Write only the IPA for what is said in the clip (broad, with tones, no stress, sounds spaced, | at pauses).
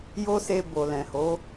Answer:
j o˦ s e˧ b o˨ l ɛ̃˨ h o˨˦